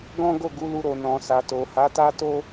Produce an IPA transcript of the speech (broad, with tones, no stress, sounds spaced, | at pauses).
ɡ ɔ̃˦ ɡ o˦˨ ɡ u˨˦ l u˧ ɾ o˨ n ɔ̃˨ s a˨ t o˨ h a˨˦ t a˦ t o˦